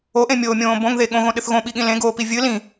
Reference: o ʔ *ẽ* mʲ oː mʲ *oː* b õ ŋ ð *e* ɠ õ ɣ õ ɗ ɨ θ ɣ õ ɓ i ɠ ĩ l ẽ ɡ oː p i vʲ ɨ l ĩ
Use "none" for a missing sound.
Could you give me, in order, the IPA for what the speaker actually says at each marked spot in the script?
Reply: ẽ, õː, e

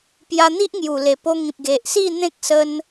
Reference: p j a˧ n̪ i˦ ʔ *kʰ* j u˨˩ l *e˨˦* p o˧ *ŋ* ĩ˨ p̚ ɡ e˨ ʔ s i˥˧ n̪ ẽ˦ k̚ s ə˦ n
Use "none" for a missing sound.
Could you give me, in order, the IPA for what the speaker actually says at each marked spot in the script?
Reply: ŋ, e˨˩, ŋ

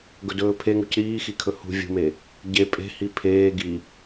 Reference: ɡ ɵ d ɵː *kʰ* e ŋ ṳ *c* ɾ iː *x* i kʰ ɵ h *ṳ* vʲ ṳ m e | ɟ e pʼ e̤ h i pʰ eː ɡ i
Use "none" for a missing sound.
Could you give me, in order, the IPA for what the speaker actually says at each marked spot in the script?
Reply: pʰ, c, x, ṳ

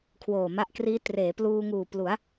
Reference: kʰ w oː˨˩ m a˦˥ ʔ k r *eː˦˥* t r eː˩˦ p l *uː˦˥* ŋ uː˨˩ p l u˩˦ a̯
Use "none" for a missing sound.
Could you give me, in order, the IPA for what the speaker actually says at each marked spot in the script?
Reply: iː˦˥, uː˧

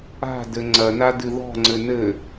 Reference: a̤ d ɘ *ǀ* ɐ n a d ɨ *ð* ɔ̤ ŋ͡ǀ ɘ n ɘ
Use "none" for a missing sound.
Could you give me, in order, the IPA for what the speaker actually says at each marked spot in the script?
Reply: ŋ͡ǀ, ð

